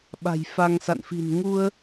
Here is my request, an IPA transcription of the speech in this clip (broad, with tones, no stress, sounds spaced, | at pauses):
ɓ a̤˨˩ j f a˧ ŋ s a̰˧˨ n f i̤˨˩ n ŋ u˧ ə̯